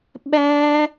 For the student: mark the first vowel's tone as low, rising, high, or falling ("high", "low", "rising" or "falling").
high